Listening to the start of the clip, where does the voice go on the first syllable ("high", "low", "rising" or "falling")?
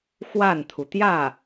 falling